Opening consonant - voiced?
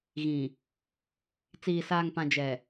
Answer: yes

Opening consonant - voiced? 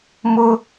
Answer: yes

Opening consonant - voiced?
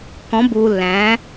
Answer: no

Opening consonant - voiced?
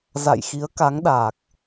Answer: yes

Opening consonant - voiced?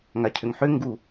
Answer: yes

